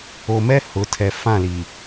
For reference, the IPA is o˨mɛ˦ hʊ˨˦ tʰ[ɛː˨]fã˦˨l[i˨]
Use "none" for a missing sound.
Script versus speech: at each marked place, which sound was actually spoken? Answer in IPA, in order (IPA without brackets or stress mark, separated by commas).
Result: ɛ˨, i˨